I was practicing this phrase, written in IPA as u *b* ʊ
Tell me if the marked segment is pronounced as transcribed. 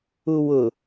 no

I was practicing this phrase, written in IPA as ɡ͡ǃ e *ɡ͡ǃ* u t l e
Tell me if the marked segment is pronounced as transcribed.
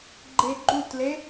yes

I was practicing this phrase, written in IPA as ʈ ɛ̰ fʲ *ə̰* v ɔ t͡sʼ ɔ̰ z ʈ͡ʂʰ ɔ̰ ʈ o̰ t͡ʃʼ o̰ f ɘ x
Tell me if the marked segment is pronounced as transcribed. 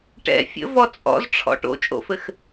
yes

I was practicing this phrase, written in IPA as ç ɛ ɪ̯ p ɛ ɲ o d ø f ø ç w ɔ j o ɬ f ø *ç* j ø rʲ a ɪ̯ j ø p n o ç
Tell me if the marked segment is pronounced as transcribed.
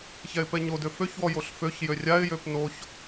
yes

